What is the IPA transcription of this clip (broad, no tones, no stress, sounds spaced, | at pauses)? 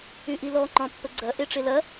y ʔ i l ɔ ŋ͡ǃ ɔ̃ pː ə ɡ͡ǀ ɐ ʔ e ʈ͡ʂ e l ɐ